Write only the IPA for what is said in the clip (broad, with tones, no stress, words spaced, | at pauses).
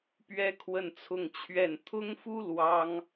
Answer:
pɥɛ˥kʰwə˥˧nt͡sʰʊ˥˧ŋt͡ɕʰɥɛ˥˩n t̪ʰʊ˥ŋfu˥ lwɑ˥ŋ